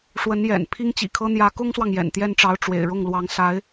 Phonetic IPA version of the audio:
ʂ w ə˧˥ n j ɛ̰˨˩ n pʰ i˥ ŋ t͡ɕ ḭ˨˩ kʰ ɤ˥ n̪ j ä˧˥ k ʊ˥ ŋ s w ɑ˨ ŋ j ɛ̰˨˩ n t̪ j ɛ˥˩ n ʈ͡ʂ ɑ˧˥ ʊ̯ ʈ͡ʂ w ḛ˨˩ ɪ̯ ɻ ʊ˥˩ ŋ l w ɑ˧˥ ŋ s a˧˥ ɪ̯

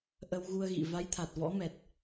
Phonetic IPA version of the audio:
ʔ ə˧ w ɣ u˧ ə̯ ɣ ḭ˧˨ v a˨˦ j t̪ʰ a˨˩ t̚ v ɔ̰˧˥ m ɛ˨˩ t̚

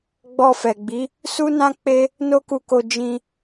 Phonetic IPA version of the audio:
ɡ͡b ɔ˧ f ɛ˨ ɡ͡b i˨˦ | s u˦ n ã˦ k͡p e˦ | n o˦ k u˧ k o˧ d͡ʒ ĩ˧

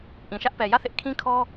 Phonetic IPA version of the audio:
ʔ ĩ˨ ʃ ä˦ ʔ p ɛ˨ j ä˦˨ θ ɪ˦ ʔ kʰ ĩ˦ kʰ ɔ˦

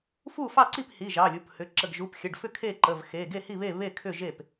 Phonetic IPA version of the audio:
f u˥˩ f ɑ˥˩ ǀ i˥˩ p h i˩˧˩ ʒ ɑ˩˧˩ lʲ u˩˧˩ p h ʏ˩˧˩ ǁ ə˩˧˩ ɡ ʒ u˩˧˩ p xʲ ə˩˧˩ ɖ f ʏ˥˩ kʰ e˥˩ ǃ ə˩˧˩ v x e˩˧˩ ɡ e˥˩ h i˥˩ β e˥˩ β e˥˩ kʰ ʏ˥˩ ʒ e˥˩ p

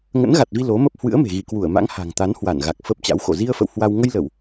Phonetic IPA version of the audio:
ŋ ə̰˧˥ n ɣ a˨˩ t̚ v i˧ l o˨˦ m ə˦˥ p̚ h w ɨ̰˧˥ ə̯ m e̤˨˩ ɣ i˧˩ k w u˧˩ ə̯ m a̰˧˥ ŋ h a̤˨˩ ŋ t̪ a˨˦ n h w a˧˩ n ɣ a˨˩ k̚ f ə˦˥ p̚ t͡ɕ a̰˧˥ w x o̰˧˨ z i˧ ə̯ f ə̰˧˨ w h w a˧ w ŋ ə˧ j l ə˧˩˨ w

